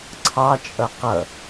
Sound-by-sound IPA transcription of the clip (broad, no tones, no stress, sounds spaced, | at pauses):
ǀʰ ɑ t͡ʃʼ ʌ q ʌ